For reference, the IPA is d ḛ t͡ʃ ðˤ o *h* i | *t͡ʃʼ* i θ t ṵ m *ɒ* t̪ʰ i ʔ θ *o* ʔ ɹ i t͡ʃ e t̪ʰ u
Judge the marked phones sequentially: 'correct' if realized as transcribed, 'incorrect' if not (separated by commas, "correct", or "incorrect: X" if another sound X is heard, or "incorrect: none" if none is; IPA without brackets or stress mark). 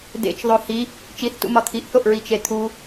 correct, incorrect: t͡ʃ, correct, correct